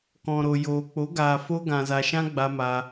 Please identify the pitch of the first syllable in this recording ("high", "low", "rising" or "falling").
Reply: low